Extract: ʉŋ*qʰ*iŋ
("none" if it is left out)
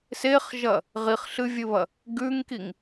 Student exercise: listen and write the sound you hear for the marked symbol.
k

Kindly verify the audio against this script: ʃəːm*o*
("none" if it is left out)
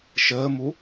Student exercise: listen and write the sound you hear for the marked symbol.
u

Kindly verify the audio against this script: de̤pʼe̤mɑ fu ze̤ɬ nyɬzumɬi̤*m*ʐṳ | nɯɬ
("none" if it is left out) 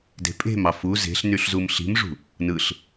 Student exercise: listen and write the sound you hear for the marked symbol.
m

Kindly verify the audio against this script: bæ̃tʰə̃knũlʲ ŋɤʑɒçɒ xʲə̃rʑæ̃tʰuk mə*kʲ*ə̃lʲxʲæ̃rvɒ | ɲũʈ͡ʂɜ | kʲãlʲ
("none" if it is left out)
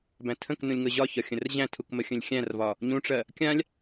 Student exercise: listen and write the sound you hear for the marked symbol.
xʲ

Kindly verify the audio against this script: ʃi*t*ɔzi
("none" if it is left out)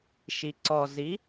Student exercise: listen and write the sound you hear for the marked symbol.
ǀ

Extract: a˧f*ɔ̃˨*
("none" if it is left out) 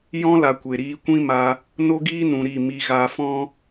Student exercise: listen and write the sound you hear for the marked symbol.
ɔ̃˦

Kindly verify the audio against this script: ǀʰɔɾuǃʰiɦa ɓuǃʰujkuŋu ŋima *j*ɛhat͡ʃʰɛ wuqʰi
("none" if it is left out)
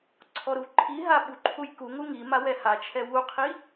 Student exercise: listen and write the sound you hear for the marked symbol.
w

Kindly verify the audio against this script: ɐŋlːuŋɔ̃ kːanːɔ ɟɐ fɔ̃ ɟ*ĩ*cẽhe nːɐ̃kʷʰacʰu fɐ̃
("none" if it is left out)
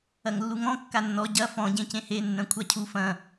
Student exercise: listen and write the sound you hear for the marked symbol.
ẽ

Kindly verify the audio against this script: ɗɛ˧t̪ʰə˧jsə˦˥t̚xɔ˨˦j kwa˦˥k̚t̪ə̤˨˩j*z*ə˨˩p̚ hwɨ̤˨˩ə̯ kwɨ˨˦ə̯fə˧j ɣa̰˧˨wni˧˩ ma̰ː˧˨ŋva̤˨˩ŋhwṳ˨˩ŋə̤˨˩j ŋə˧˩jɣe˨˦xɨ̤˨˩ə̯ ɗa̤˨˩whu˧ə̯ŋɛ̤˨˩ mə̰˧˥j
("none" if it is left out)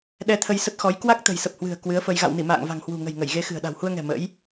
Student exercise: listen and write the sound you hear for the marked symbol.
s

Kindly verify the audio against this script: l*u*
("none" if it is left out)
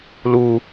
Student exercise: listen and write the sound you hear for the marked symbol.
u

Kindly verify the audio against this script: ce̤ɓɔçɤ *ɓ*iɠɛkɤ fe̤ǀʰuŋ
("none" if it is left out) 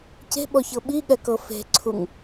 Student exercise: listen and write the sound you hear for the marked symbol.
ɓ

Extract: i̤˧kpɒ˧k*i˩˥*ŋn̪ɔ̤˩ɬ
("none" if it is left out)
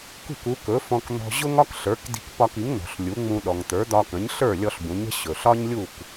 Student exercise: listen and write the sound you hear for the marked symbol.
i˩˥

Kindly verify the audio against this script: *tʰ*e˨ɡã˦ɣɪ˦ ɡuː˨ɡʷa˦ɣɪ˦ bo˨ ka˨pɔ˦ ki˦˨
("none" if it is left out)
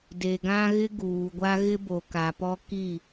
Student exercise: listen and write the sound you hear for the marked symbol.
d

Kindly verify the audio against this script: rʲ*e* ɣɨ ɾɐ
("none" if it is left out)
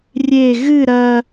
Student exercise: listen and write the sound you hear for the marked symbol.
e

